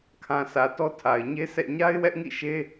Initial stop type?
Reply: aspirated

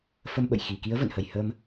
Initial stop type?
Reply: implosive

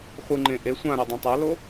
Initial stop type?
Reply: click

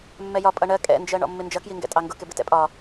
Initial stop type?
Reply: ejective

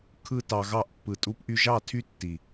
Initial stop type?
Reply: aspirated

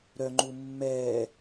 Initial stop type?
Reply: click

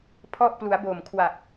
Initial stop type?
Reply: aspirated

